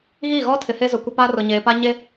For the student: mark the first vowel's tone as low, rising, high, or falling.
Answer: falling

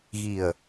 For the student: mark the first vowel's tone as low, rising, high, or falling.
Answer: low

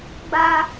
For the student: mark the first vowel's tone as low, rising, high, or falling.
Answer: high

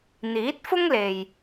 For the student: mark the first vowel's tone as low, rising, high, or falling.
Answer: rising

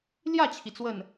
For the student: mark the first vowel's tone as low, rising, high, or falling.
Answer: falling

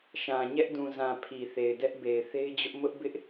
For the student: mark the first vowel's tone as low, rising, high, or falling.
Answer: low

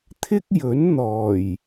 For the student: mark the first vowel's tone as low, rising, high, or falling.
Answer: high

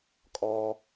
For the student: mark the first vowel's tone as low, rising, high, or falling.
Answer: high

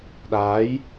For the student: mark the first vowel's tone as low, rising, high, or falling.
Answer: rising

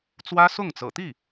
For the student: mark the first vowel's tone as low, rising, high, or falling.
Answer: high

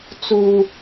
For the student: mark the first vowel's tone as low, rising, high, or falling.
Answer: high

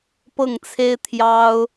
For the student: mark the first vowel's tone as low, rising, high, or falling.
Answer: falling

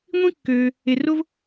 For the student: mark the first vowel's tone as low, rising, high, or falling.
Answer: high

